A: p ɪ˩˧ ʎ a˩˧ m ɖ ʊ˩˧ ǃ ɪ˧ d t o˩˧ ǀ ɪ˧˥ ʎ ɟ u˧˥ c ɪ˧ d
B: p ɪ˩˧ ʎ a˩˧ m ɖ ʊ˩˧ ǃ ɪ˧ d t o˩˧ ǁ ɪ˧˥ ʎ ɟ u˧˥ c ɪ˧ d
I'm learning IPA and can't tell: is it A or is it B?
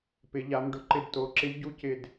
B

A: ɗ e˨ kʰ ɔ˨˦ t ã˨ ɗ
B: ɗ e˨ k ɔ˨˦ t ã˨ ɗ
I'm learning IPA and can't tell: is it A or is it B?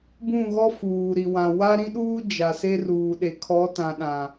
A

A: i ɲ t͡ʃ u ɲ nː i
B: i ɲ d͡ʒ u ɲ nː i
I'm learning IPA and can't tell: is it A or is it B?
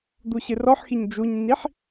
B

